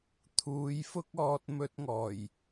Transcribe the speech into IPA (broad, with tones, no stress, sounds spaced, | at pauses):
t̪ʰ uː˨˧ j f ʊ˥ k̚ ɔː˧ t̚ m ɵ˧ t̚ ŋ ɔː˨˩ j